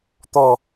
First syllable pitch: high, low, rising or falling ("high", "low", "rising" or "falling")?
low